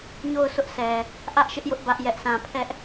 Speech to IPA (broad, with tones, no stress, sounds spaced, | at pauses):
ɲ o˦˨ ʊ̯ sʰ ʊ˦ ʔ sʰ ɛ˨ | ʔ ä˦ ʔ ʃ ɪ˦ ʔ j ʊ˦ ʔ b ä˦ ʔ j ɛ˦ ʔ sʰ ã˦˨ pʰ ɛ˦ ʔ